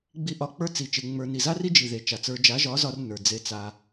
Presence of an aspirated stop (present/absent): absent